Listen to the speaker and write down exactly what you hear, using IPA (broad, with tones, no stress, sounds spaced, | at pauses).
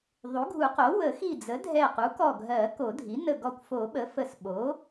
ðˤ u˩˥ ɡʱ u˨˩˦ q o˩˥ w ə˨˩˦ x i˧˩ d͡z ə˩˥ dʱ ɛ˧˩ q u˩˥ k ɔ˧˩ ɡʱ ɜ˨˩˦ k o˨˩˦ dʱ i˩˥ n ə˧˩ ɡ ɔ˧˩ kʷ f o˨˩˦ ɓ ə˩˥ f ə˧˩ s ɓ o˩˥